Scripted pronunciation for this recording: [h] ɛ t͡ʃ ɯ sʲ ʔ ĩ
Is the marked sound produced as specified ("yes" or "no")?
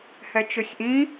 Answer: yes